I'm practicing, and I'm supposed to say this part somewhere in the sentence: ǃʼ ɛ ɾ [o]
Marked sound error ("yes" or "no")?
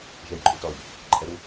yes